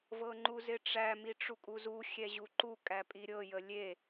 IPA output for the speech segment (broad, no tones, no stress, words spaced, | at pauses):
vɤŋ͡ǃuzɪʈ͡ʂæ miʈ͡ʂukʼuzu xʲɛʑuǃu kʼæpʼiɾʲɤ jəlʲe